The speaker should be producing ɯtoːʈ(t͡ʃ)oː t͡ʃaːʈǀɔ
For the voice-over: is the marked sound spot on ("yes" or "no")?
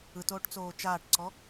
no